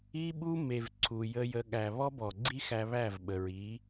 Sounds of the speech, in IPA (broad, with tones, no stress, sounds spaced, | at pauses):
i˦ ɓ u˦ m e˨ v ǀʰ u˨ j ə˧ j ə˧ ɠ æ˨ β ɔ˦ b ɔ˨ ɡ͡ǀ i˦ x æ˧ β æ˦˨ v ɓ ə˨ ɹ i˨˦